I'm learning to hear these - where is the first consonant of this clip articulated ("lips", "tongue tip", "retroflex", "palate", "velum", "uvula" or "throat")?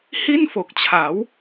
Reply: throat